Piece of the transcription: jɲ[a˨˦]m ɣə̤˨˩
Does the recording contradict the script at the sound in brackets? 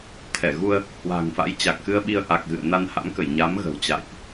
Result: no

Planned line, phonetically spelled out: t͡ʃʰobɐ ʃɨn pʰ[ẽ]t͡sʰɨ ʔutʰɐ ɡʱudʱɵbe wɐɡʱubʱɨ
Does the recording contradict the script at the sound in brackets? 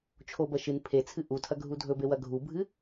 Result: yes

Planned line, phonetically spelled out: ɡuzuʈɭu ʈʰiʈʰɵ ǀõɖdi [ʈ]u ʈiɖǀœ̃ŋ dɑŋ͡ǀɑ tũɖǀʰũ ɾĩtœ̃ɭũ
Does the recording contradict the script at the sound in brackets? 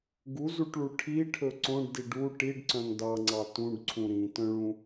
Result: yes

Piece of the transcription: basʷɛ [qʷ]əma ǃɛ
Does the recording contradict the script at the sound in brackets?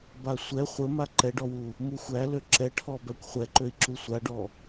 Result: yes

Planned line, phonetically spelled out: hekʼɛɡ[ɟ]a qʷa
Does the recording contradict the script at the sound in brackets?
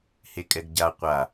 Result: no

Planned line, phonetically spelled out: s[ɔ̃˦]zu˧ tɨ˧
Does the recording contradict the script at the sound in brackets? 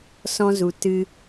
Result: no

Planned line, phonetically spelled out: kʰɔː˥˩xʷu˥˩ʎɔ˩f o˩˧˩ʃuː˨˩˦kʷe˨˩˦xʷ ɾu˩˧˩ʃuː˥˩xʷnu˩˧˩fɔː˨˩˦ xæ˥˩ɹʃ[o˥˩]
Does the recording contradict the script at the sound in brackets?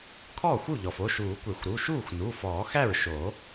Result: yes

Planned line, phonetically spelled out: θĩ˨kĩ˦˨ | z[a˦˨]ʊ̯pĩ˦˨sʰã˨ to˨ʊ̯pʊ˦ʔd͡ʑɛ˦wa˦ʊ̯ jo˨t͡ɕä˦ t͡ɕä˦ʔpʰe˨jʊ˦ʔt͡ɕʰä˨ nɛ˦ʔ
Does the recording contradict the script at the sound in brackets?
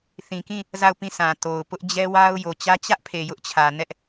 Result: no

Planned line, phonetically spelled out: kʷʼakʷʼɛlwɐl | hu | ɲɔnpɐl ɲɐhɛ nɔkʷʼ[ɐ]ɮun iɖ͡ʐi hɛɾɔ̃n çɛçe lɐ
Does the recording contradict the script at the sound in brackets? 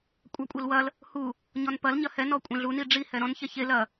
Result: yes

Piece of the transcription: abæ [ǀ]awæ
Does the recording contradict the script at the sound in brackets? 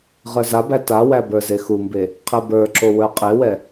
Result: yes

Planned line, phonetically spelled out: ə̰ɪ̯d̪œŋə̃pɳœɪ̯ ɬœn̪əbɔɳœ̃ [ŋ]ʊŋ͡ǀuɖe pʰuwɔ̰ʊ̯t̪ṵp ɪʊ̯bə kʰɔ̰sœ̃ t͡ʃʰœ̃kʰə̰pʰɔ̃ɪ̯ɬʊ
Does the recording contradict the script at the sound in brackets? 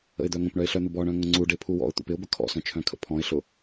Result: no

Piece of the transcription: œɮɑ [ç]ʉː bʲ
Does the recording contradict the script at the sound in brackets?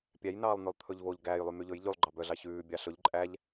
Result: no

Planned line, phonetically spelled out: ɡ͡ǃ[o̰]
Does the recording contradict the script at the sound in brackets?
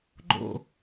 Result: no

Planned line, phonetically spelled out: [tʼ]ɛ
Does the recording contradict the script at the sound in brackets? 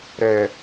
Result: yes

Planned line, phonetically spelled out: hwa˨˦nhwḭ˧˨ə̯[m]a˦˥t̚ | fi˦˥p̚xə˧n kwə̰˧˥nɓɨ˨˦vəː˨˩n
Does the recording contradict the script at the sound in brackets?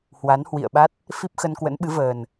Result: yes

